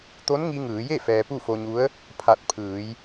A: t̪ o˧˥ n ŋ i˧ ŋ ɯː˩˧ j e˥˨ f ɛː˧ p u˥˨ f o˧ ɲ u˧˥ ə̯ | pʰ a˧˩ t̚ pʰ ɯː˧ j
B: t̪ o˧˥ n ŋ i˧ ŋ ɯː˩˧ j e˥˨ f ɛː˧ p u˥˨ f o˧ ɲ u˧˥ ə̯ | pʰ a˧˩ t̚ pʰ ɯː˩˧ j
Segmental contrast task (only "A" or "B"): B